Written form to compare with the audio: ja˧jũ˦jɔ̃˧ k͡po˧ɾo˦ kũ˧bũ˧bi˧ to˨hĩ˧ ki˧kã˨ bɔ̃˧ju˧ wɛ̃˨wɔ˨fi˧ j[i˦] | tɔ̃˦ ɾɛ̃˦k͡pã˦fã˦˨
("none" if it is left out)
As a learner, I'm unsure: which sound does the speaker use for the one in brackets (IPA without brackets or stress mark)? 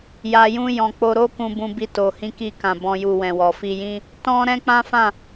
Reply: ĩ˦